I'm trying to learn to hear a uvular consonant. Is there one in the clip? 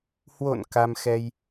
no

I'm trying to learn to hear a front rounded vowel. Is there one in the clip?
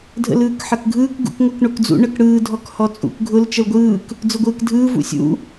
no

